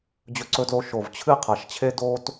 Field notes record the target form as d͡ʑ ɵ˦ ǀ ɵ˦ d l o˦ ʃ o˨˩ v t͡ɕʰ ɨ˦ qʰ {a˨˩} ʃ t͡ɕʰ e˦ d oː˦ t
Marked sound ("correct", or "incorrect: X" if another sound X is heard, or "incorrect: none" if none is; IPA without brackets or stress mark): correct